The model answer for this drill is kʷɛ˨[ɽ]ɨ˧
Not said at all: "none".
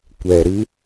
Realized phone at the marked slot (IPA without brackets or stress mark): ɾ